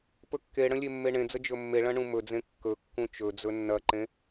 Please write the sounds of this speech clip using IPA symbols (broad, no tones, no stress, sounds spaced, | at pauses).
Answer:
p ɵ kː e ɽ ə̃ lʲ e mː e ɳ ẽ d͡z ə d͡ʒ ɵ mː e ɭ ɐ̃ ɳ ũ m ɵ d͡z ẽ kː ɵ kː ũ t͡ʃ ɵ d͡z ɵ nː ɐ ǃ ẽ